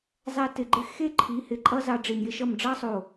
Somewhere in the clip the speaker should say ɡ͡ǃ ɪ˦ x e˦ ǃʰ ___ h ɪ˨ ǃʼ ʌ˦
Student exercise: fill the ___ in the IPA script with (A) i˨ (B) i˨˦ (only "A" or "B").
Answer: B